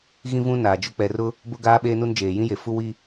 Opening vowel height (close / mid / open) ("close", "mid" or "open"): close